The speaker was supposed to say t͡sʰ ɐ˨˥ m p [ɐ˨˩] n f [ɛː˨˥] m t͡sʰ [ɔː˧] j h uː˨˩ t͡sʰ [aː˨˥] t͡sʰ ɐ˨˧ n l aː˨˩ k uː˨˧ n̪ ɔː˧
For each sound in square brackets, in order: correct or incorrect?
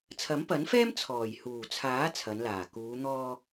incorrect: ɐ˨˥, incorrect: ɛː˥, incorrect: ɔː˨˩, correct

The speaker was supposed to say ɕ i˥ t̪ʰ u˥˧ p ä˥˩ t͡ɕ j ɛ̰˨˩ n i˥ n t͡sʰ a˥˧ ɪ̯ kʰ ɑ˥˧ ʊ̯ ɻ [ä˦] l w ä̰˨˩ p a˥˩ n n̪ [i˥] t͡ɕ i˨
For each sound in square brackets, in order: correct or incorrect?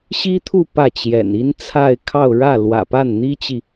incorrect: ä˥˩, correct

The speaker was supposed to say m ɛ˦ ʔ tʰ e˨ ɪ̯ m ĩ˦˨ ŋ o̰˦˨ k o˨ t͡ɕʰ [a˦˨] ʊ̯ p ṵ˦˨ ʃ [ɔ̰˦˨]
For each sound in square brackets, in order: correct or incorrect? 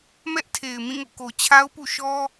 incorrect: a˦, incorrect: ɔ˦

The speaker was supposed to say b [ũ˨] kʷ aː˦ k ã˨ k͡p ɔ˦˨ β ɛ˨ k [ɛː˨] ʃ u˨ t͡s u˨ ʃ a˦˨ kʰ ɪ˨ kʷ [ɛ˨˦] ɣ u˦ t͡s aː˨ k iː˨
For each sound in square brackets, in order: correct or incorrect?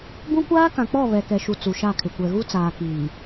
incorrect: ũ˦, incorrect: ɛ˨, incorrect: ɛ˨

